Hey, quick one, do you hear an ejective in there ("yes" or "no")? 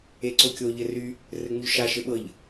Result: no